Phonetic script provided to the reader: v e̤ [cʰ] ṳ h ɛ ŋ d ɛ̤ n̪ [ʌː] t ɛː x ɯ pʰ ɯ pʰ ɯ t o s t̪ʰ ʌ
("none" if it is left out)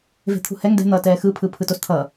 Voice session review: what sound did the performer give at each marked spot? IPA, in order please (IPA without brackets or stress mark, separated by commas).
t̪ʰ, ʌː